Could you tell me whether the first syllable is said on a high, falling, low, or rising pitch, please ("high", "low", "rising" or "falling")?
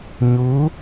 rising